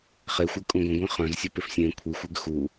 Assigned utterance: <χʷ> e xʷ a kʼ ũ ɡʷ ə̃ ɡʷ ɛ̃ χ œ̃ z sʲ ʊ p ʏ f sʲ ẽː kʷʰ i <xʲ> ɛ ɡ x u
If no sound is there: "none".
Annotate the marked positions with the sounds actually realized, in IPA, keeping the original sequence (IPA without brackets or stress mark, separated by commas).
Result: χ, xʷ